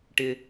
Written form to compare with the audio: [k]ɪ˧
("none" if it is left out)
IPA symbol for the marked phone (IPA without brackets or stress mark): ʈ